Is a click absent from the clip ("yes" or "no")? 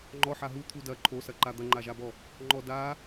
no